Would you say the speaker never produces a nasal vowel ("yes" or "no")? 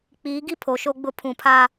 no